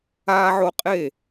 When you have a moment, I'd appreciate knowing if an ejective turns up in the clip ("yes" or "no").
yes